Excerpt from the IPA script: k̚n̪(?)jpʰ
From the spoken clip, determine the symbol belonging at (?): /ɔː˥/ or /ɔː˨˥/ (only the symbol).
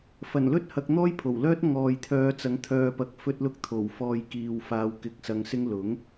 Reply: ɔː˥